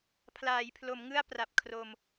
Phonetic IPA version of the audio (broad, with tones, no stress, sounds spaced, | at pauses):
pʰ l aː˩˦ j pʰ l o˩˦ m ŋ ɯ˥˩ a̯ p r a˨˩ p̚ kʰ r o˧ m